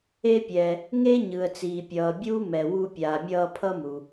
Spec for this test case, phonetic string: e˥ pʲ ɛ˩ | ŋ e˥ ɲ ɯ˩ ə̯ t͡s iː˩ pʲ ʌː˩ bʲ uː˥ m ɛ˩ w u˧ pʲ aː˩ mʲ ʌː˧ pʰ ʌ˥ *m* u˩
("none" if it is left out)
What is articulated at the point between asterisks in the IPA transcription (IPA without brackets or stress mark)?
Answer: m